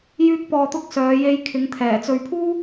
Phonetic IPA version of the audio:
j yː˧ k̚ p ɔː˨ t̪ ʊ˧ k̚ s œː˨˧ j e˧ j kʰ ɪ˨˧ ŋ t̪ʰ ɛː˨˩ t͡s ɵ˨ ɥ pʰ uː˥

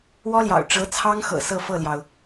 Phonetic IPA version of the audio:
w ɔ˥ l j ɑ̰˨˩ ʊ̯ ʈ͡ʂ ɤ˧˥ t͡sʰ ɑ˥ ŋ x ɤ̰˨˩ s ɤ˥˧ f ɤ˥˩ l j ɑ˩ ʊ̯

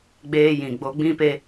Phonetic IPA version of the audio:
ɡ͡b eː˧ j ĩ˨ ɡ͡b o˧ ɡ͡b ĩ˦ p e˦

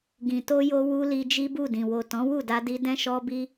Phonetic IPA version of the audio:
ɡ ĩ˨ t o˧ j o˧ w u˧ l i˧ d͡ʒ i˦ b u˦˨ d ĩ˨ w o˨ t ɔ̃˨˦ w u˦˨ d a˧ d i˧ d ɛ̃˦ ʃ ɔ˦ b i˦

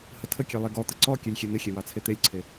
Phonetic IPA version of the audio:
h ə tʰ ə kʲ e lˠ e ɡ ɔ t̪ ə ǀ ɔ kʲ e lʲ xʲ e n̪ ɪ xʲ e w ɑ t͡sʰ e t̪ e lʲ ǀʰ e

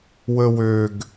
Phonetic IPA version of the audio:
w ə w ø ɡ

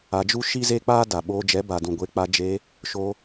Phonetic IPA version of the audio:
a˧ d͡ʒ u˦ ʃ i˦ z e˦ k͡p aː˦ d a˨ ɓ oː˧ d͡ʒ ɛ˨˦ b a˨ d ũ˨ ɡʷ e˧ k͡p a˧ d͡ʒ e˧ | ʃ o˧

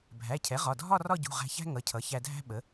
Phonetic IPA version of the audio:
bʱ æ˩˧˩ cʰ ɛ˩˥ ʁ ɒ˩˧˩ dʱ ɒ˥˧ r ɒ˥˧ ɟ ṳ˩˧˩ ʁ æ̤˧ ç æ̤˥ ŋ ʌ˩˧˩ cʰ ʌ˩˥ ç æ˧ dʱ æ̤˥ ɓ ə˩˥

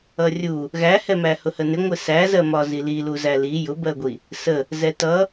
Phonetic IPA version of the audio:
ʌ rʲ u | ɣ æ h ɛ m æ h ʊ h ə n ɪ ŋʷ ɪ s æ z ɜ m ɒ z i l i l u z æ l i j ʊ b ɜ ɡʷ i | s ə | z ɛ t ʌ

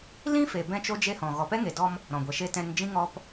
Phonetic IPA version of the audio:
l ĩ˦ f e˨ b ɛ̃˧ t͡ʃ o˦ d͡ʒ e˦ h ɔ̃˨ ɣ ɔ˨ p ɛ˦ ŋ e˨ d ɔ˧ m | ɾ ɔ̃˨ ɡʷ ɛ˨ ʃ e˦ t ɛ̃˦ n d͡ʒ ĩ˦ ŋ ɔ˧ p

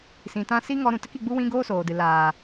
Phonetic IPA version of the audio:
s ĩ˨ t ã˧ s i˦ ŋ ɔ˧ ɾ ũ˨ t ə˦ k i˧ ɡ͡b u˦ w ĩ˦ ɡ oː˦ s oː˨ d ɨ˨ l aː˨

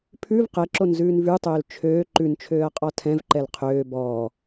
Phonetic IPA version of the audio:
pʰ ʉ v q ɛ ǁ o n z ʉː n v ʉ tˤ øː l t͡ʃʰ øː ǃ ʉ n t͡ʃʰ øː ɐ̯ qʼ ɔ tʰ ɛ̃ v ǃ ɛ l qʰ øː b ɔː

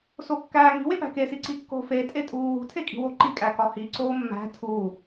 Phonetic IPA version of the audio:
s o kː æː ŋ i̤ w e p æ̤ k e s i ǀ i kː o̤ f e tʼ e tʼ uː w ṳ tʰ e kʼ i̤ w o ǃ i kʼ æ k ɒ h i ǀ oː mː æ̤ tʰ u

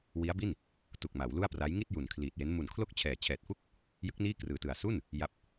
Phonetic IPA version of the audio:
w i˦˥ a̯ b i˥˩ n | t u˨˩ k̚ m a˩˦ w l u˥˩ a̯ p r a˦˥ j ŋ i˥˩ t̚ j u˨˩ n kʰ l iː˨˩ t̚ j e˦˥ n m u˨˩ n kʰ l o˥˩ k̚ t͡ɕʰ ɛː˨˩ t͡ɕʰ ɛː˨˩ t̚ f u˥˩ k̚ | j ɯ˦˥ k̚ n iː˥˩ k r ɯː˨˩ t ɯ˨˩ a̯ s u˥˩ n | j a˦˥ p̚

